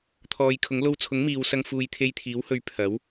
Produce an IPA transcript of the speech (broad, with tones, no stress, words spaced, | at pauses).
t̪ʰɔː˨jkʰʊ˨˥ŋ lo˧wt͡sʰʊ˨˥ŋ miː˨wsɐ˧ŋfuː˨˧j t̪ʰe˧jt̪ʰiː˨˥whɵ˨˧ɥ pʰɐ˨˥w